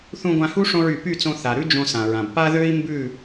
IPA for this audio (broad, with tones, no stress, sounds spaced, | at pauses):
θ ũ˧ ɡʷ ã˧ h u˦ ʂ õ˧ ɹ y˨ p y˦˨ t͡s õ˧ θ a˨ ɾ ʉ˦ d͡ʒ õ˧ s ã˨ ɹ ã˨ b p a˦ ð ø˦ i̯ m b ʉ˦˨